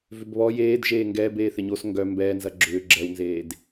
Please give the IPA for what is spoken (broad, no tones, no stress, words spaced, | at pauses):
vʏbβɔ jeːd ʒeːŋɡɛːbeː θɪɲos ŋɡœ mbɛːnzɐ ɡ͡ǁʏː ɡ͡ǁɛwnzeːd